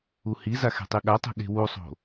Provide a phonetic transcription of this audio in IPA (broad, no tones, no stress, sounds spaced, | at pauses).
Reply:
u h i z a x e̤ tˤ i ɠ a tˤ e̤ ɠ e̤ w u sˤ o̤